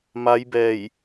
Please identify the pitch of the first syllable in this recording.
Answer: rising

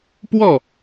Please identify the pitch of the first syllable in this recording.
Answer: falling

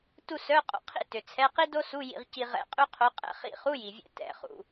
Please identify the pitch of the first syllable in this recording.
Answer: falling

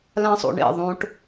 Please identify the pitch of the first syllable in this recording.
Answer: high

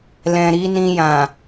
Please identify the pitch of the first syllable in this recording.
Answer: low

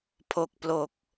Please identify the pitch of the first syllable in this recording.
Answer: low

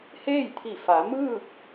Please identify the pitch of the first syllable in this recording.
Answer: falling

